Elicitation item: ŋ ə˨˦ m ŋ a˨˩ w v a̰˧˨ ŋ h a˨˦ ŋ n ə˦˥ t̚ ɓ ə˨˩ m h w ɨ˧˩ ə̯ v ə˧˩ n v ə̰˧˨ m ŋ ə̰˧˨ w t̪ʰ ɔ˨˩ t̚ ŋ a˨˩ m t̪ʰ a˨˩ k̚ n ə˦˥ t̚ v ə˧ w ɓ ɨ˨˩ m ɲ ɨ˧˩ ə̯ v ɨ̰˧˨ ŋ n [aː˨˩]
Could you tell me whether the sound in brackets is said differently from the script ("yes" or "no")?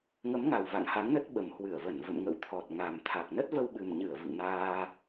yes